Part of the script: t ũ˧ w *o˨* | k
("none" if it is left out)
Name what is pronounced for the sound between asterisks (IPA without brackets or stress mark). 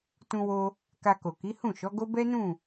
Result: o˧